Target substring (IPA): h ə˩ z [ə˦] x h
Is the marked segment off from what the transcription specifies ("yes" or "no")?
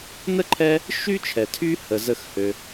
yes